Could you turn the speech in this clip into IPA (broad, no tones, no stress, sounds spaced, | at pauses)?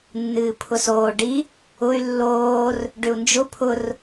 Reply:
nː ɨː pʰ ʊ s oː ɖ i | ʊ y̯ lː oː r | ɖ ʏ u̯ n d͡ʒ ʊ pʰ ʊ r